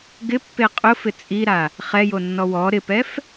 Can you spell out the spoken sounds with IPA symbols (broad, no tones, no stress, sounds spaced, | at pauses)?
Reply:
ɡ ɪ pː e qʼ ʊ f ɪ t͡sʼ i ɾ a | χ ɛ j o nː ɔ w ɔ ɾ ɪ p ɛ f